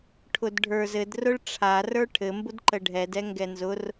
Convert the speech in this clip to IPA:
ʈʰʊdɖʱə˞z ɘd rʊɭʈ͡ʂʰa rə˞ʈʰɘ mbʊdǃəɖʱɛd ɛŋɡɛnzʊr

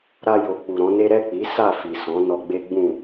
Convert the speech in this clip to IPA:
ɾa˧jo˨ k͡pu˨ɾɔ̃˨˦ne˦ ɾɛ˦˨k͡pi˨˦ sa˦˨fi˨sɔ̃˨˦ nɔ˧ɡ͡be˦ ɡ͡bũ˦˨

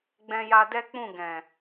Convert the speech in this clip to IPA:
ɡ͡bɛ̃˦ja˦ dɛ˦k͡pũ˦˨ ɡɛ̃˨

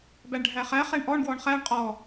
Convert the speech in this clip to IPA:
bæɳɖʱæχæ χɛɳʔɔɳ ɡwɔɳχæɳ qʼɔ

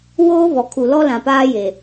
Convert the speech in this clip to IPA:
woː˦βɔ˨ kʰu˨lɔ˦ lã˨paː˦je˨

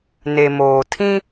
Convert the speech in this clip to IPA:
ne˨moː˨tʰĩ˦

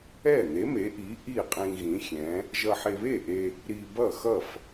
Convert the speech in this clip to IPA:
ɛ˥˩n̪e˨˥me˨˥ʔi˨˥ ʔi˥˩qʼĩ˧ ɣĩ˨˥xʲɛ̃˨˥ | ʒʌ˧ħe˧βe˥˩ʔe˧ | ɾi˧ bʌ˥˩xʌ˥˩f

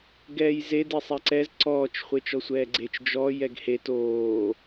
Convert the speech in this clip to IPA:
ɡɛːjze desˤɛǀɛz ǀɔːt͡ʃ χʷet͡ʃɔsʷɛːɡ͡ǀet͡ʃ d͡ʒɔ jɛɡhe toː

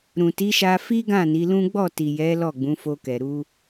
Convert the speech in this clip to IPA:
ɾũ˨ti˨˦ʃa˧ fi˦ɡã˦˨ ni˨˦lũ˦ ɡ͡bɔ˦˨ti˨jɛ˨˦ lɔ˦˨ɡ͡bũ˨˦ fo˧kɛ˨ ɾu˧

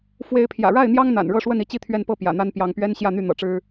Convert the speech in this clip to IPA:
fwe˨˦ɪ̯pʰjä̰˨˩ɻa˥˨ɪ̯n̪jɑ˦ŋ n̪a̰˨˩n ɻɤ˥˨ʂwə˥˨n i˦t͡ɕi˥˨t̪ʰɥɛ˥˨npɤ˥˨ pjä̰˨˩n̪a˦n pjɑ˨˦ŋpɥɛ˦n ɕjä˥˨n̪y˥˨n̪ɤ̰˨˩ʈ͡ʂɻ̩˦

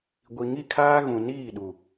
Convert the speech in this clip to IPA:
ɡʷi˨ŋi˦˨kʰaː˦ɣũ˨ niː˦˨ɗu˨

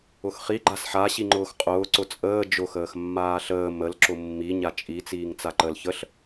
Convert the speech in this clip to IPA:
ʊxχi ɡ͡ǃasħa ɕiŋ͡ǃʊːxqʼʊː ǀʊt͡sʼəː d͡ʒʊ xəːxmːaːɬəː məl ǁʊmːi ɲat͡ʃʼi t͡siːŋt͡saǃəl çəɬ

